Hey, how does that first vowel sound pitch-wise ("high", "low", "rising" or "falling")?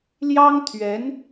high